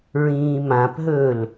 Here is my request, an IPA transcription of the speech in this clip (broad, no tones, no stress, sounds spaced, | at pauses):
ɹ ĩː m ã p ɦ ɵː l